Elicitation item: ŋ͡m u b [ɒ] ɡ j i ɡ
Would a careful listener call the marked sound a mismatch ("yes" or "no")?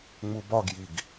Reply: no